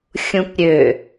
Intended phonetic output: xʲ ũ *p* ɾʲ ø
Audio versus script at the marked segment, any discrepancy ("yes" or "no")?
no